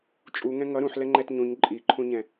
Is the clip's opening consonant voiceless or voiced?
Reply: voiceless